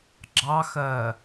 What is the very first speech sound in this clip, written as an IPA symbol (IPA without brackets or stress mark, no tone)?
ɡ͡ǁ